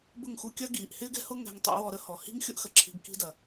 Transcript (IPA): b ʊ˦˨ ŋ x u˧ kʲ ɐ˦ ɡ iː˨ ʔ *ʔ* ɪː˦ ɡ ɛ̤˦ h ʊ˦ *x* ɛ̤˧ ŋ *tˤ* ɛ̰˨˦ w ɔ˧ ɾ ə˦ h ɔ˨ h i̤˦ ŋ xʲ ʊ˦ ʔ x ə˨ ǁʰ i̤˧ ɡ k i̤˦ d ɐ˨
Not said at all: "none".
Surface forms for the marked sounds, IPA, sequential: h, ŋ, tˤ

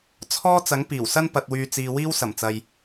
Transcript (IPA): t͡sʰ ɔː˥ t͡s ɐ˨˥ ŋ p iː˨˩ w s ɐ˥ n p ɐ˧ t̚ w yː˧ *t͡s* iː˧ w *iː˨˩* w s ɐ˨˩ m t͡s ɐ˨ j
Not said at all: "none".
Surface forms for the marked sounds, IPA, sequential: t͡s, iː˥

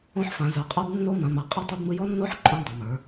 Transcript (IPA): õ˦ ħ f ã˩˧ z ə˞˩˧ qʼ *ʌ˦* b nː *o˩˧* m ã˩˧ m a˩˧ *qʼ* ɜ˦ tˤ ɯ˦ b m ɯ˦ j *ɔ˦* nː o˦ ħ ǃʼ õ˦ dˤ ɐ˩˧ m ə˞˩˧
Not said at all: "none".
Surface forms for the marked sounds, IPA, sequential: ə˞˦, o˦, qʼ, ɔ˦

